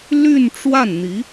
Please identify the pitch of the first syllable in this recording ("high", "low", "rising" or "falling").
falling